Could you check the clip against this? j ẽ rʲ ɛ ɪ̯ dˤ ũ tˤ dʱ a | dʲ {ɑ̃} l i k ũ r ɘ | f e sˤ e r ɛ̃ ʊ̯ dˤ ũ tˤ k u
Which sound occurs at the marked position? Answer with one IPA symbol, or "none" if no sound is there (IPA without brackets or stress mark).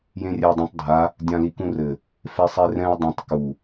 ã